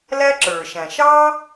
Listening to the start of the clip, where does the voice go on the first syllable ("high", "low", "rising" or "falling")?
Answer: high